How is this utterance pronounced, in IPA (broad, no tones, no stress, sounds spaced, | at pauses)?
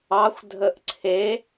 ɑ xʷ dʱ ə ʔ ǀʰ e